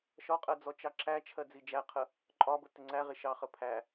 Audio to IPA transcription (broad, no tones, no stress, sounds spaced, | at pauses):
ʃ ɒ qʼ ɜ d͡z ɔ t͡ʃ ɑ ǁ æ t͡ʃʰ ɜ d͡z i d͡ʒ æ qʰ ə | ǃʼ ɒ b ə t ɪ ŋ͡ǀ æ ʁ ɪ ʃ ɑ χ ə pʰ æ